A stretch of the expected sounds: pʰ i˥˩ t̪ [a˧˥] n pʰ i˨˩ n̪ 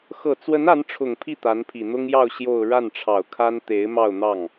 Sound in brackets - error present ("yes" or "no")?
no